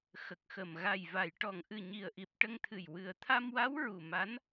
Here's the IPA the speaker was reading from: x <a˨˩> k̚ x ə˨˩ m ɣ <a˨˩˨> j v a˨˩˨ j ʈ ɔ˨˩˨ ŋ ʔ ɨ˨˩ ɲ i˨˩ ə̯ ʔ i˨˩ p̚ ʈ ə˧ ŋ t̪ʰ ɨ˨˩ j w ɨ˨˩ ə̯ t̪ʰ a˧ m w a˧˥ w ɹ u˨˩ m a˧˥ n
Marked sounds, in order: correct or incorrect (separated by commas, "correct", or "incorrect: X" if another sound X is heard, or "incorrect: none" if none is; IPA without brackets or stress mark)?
incorrect: ə˨˩, incorrect: a˨˩